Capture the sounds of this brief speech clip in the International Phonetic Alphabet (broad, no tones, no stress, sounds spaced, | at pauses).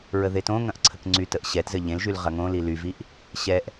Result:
ɹ ə ð e t õ ŋ ɐ̃ ʔ ǀʰ ə k ŋ͡ǀ y t ə ʔ ɕ ɛ t z ɘ ʎ ẽ l ʒ y l ʁ ɐ ŋ õ l i l y v i ʔ | ɕ ɛ ʔ